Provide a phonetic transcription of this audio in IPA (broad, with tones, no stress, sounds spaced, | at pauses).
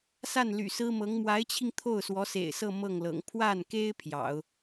s a˥˩ n l y̰˨˩ s ɹ̩˥ m ɤ˧˥ ŋ m w a˧˥ ɪ̯ t͡ɕʰ i˧ ŋ t̪ʰ o˥˩ ʊ̯ s w ɔ˧˥ s ḛ˨˩ ɪ̯ s ɤ˥˧ m ɤ˥˩ ŋ l ɤ̰˨˩ ŋ pʰ w a˥˩ n k e˥ ɪ̯ pʰ j ɑ̰˨˩˦ ʊ̯